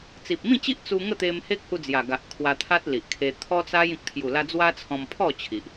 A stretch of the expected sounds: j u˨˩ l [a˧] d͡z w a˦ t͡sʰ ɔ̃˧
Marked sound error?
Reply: no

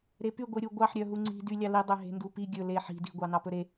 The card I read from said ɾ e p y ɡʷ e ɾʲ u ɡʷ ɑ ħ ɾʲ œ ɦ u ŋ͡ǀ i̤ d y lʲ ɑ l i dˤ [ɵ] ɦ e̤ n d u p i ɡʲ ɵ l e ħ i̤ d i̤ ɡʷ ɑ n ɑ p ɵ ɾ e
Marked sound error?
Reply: yes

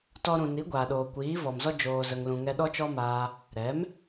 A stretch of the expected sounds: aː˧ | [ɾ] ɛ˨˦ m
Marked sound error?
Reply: no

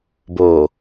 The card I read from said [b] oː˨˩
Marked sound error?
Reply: no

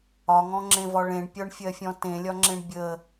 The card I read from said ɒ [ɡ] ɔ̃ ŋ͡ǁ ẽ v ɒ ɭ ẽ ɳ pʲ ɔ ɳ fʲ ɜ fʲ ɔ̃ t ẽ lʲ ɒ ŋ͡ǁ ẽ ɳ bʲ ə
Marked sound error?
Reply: yes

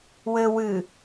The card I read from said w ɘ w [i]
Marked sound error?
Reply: yes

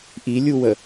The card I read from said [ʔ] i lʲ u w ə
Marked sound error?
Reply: no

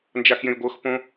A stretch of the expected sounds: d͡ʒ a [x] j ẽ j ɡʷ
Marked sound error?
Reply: no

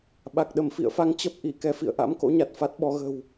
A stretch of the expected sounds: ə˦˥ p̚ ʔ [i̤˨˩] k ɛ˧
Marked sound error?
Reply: yes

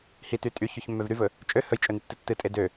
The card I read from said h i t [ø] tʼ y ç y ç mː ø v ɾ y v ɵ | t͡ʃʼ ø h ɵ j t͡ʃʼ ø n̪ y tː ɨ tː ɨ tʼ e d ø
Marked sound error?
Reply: yes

